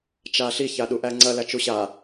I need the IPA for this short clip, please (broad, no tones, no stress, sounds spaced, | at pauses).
t͡ʃ a ɬ i ç a ɗ u ʔ æ ŋ͡ǀ ɐ l æ t͡ʃ u ɕ a